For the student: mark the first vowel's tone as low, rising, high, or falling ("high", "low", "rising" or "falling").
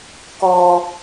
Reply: low